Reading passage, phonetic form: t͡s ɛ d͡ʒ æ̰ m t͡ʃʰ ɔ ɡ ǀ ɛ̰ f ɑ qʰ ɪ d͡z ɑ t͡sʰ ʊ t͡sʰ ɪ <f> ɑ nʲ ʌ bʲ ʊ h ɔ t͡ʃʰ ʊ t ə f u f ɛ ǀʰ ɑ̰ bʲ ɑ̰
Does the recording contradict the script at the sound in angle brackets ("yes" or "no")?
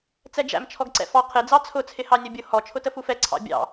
yes